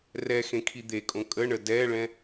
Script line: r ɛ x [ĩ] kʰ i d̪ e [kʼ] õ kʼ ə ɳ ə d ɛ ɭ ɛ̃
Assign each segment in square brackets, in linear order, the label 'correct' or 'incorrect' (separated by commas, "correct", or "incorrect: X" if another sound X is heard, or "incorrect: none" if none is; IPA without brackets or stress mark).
incorrect: ẽ, correct